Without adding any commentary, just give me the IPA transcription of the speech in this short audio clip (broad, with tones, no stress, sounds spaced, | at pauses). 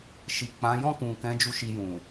ʃ i˨ k͡p ã˨˦ j ɔ̃˦˨ k ũ˨ k ɛ̃˨˦ d͡ʒ u˦ ʃ i˧ j ũ˨